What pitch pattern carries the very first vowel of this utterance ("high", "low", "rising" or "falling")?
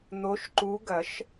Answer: rising